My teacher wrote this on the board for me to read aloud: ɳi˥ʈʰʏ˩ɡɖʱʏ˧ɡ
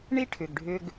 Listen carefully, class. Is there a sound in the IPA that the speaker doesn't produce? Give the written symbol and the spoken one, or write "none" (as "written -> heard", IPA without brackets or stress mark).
none